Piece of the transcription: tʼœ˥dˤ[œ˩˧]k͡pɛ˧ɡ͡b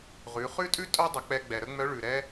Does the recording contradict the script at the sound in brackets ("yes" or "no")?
yes